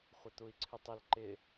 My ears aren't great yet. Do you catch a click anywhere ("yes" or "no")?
yes